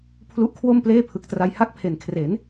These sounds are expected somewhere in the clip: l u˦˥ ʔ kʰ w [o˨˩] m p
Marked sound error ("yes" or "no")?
yes